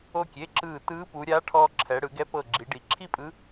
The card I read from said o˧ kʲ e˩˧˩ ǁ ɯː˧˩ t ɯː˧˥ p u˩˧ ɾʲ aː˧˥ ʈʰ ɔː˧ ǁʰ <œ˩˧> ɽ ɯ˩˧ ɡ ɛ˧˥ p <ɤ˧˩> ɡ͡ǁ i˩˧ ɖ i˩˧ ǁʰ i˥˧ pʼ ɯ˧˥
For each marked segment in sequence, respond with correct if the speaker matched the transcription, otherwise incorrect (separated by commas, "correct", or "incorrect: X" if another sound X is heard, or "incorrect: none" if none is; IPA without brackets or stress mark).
incorrect: ɛ˩˧, correct